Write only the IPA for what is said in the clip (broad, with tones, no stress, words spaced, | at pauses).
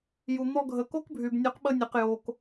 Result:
ju˨n̪ɔ˧ɡʱə˨ ko˦k bʱy˨bnʲu˨˦q ɓə˧nʲe˨q jo˨k